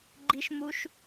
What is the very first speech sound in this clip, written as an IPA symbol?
ɡ͡ǃ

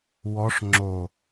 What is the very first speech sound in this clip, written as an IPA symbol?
w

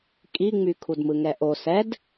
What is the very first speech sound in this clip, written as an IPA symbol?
kʼ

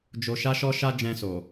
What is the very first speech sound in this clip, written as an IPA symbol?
d͡ʒ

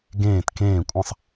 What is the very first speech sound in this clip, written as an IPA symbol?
ɡ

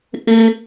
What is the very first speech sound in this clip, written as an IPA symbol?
ʔ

